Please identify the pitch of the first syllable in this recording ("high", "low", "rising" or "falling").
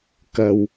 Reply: low